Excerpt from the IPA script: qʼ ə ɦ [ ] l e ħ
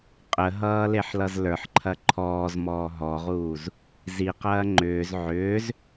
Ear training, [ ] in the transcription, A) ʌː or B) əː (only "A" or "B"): A